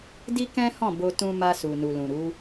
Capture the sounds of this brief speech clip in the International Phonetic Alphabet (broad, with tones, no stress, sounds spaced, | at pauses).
d i˦ k ɛ̃˦ h ɔ̃˦˨ b o˧ t ũ˧ m a˧ s u˨ n u˨ l ũ˨ ɾ u˨˦